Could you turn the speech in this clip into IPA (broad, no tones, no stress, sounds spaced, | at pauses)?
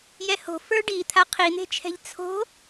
j ɛ h o̤ f ə˞ ɖ i t̪ʰ a qʰ i n̪ e̤ t͡ʃʰ ɛ̤ ʎ t͡sʰ o̤